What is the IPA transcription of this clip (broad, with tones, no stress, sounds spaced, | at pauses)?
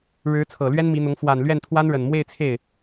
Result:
ɻ ɻ̩˧˥ t͡sʰ ɤ˨˩ l ɥ ɛ˥ n m i˧˥ n̪ ʊ˧˥ ŋ f w a˨˩ n l ɥ ɛ˥˩ n t̪ʰ w a˥ n ɻ ə˨˩ n m w e˥˧ ɪ̯ t͡sʰ e˥˩ ɪ̯